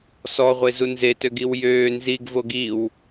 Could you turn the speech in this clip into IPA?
sɔʁʷezu nzetøɡiw jøː nziɡvoɡ iw

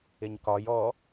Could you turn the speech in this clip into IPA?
ɪɲkɒj ɔ

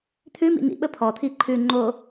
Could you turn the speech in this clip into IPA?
t̪ʰʉmḭ nḭɓə pʰɔt̪ʰi ǃʰʉ ŋ͡ǃo

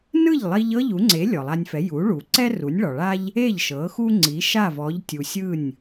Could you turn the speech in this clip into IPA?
nɯ˥˩ʎlˠi˧ʎ ɤ˥ʎu˩˥ŋ͡ǀe˩˥ lʲɔ˩lˠa˧nʲfɛ˩˥ ju˩˥ɭu˩ǀɛ˥ ru˩˥nʲɭɔ˩ɭa˥ʎ | e˥˩ʎʃɤ˩˥ xu˥ŋ͡ǀi˩˥ ʃa˥˩vɔ˩˥ʎtʲu˩ sʲɯ˥˩nʲ

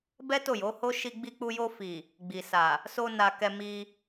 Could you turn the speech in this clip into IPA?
bɛ˦ to˦˨jo˨˦ho˦ ʃi˧ɡ͡bi˧k͡pu˧jo˧ fi˨ | ɡ͡bi˨sa˨ | so˧ na˧kɛ˧ mi˧

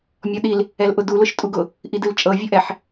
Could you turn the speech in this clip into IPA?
mʲɔɗil | ɛlʔʊdu lʊʃtʼuɡʊ | ʔidɨlt͡ʃʼɤ vʲɵʔɛħ

